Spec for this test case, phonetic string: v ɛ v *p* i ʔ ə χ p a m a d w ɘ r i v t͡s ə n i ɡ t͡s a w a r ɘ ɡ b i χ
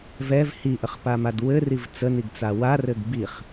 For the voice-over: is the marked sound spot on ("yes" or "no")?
no